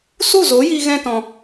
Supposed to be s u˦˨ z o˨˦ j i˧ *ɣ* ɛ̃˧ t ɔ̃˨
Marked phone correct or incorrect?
correct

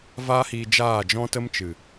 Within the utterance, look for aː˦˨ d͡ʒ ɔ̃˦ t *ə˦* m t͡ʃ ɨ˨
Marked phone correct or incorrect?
correct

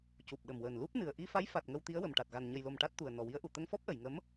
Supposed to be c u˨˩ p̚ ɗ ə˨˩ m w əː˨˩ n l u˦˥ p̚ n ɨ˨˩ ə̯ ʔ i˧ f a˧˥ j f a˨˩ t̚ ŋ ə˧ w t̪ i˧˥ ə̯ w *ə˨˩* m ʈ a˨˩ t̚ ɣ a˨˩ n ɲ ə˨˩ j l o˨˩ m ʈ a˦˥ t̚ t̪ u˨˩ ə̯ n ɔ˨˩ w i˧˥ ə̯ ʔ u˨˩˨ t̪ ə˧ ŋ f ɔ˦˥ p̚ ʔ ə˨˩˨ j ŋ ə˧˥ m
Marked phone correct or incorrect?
correct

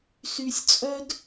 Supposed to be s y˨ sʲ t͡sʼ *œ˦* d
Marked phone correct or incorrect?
correct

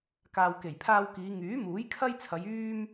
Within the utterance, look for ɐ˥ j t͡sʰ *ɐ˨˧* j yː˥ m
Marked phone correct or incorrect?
correct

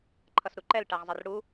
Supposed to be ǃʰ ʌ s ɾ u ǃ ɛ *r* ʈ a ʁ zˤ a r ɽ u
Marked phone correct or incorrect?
incorrect: l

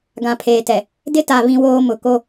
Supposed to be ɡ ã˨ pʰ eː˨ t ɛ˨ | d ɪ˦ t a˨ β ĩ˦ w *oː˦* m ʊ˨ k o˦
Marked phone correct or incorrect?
correct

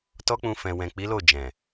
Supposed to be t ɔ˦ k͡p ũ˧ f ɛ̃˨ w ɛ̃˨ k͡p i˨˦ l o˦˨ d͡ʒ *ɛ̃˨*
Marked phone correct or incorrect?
correct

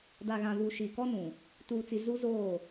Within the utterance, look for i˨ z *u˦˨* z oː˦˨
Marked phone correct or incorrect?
incorrect: u˦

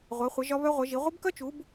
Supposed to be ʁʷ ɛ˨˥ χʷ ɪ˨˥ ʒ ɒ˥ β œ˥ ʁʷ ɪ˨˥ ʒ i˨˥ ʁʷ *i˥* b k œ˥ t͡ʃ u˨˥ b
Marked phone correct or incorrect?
incorrect: ɪ˥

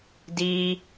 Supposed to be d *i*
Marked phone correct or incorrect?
correct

